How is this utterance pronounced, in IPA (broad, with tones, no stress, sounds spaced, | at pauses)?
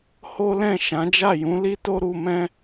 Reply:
h o˦ l ɛ̃˦˨ ʃ ã˨˦ d͡ʒ a˦˨ j ũ˨˦ l i˦ t o˦ ɾ u˧ m ɛ̃˦